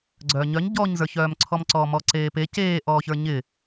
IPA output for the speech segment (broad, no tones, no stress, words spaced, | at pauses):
ɡ͡ǀœːɲœɲ ɟɔɲzə˞çœːmǀʰɔm ǀɔːmɔǀeːpe ceːʔɔːçə˞ ɲɪ